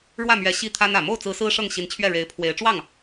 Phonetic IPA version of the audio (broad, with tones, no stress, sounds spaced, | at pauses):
ɻ w ä˥˩ m ɥ ɛ˧˥ ɕ i˥˩ t̪ʰ a˥ n ä˨˩ m o˥˩ ʊ̯ t͡s ɹ̩˧˥ s ɹ̩˥ ʂ ɤ˥˩ ŋ ɕ i˧˥ n t͡ɕʰ ɥ ɛ˥˩ ɻ e˧˥ ɪ̯ pʰ w e˧˥ ɪ̯ ʈ͡ʂ w ɑ˥˩ ŋ